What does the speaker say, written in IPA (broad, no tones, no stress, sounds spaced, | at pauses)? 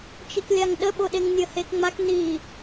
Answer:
t͡ʃ i k lʲ a ŋ ɗ ə ɓ o ɗ e ŋ nʲ ə h e k ŋ͡m a k n i